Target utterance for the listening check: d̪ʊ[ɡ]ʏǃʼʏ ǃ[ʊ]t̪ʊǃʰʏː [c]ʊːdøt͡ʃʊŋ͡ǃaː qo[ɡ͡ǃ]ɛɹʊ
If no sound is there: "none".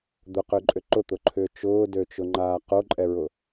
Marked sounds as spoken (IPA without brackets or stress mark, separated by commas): q, ʊ, t͡ʃ, ǃʼ